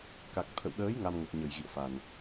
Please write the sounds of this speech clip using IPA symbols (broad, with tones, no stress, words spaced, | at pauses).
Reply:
ka˨˩k̚t̪ʰə̰˧˨wɗəː˨˦j ŋa˧mŋə˨˩t̚ ɲə˧˩j ɣḭ˧˨ə̯fa˨˩n